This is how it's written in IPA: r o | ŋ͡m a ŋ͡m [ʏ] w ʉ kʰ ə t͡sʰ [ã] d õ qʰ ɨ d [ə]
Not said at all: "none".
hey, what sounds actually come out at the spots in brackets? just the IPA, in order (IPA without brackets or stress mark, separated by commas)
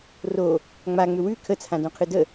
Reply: ʏ, ã, ə